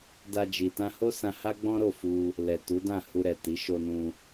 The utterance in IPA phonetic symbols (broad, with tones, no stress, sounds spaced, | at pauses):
d a˧ d͡ʒ i˨ t ã˧ h o˦ s ã˧ h a˦ ɡ͡b ɔ̃˦ ɾ o˦˨ f u˧ | l ɛ˨ t u˨˦ d ã˦˨ h u˧ ɾ ɛ˨ t i˨˦ ʃ o˧ n ũ˧